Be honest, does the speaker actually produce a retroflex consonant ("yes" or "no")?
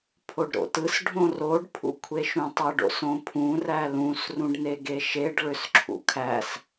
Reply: yes